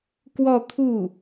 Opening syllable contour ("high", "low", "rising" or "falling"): falling